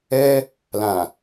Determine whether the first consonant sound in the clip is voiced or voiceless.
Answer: voiced